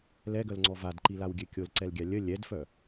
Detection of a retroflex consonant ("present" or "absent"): absent